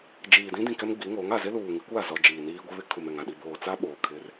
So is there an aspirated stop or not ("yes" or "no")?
yes